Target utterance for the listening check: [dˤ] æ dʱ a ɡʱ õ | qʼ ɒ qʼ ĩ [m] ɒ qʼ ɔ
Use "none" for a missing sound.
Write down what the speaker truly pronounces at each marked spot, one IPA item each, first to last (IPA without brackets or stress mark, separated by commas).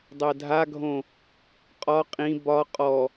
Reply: dˤ, b